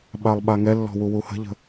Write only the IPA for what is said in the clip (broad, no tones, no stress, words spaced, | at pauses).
ɓalˠɓaŋɛlːɔ̤ wuwuhə̤ʎə̤